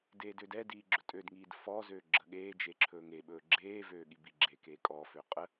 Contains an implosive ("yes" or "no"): yes